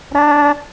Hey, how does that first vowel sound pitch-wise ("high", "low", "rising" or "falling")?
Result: high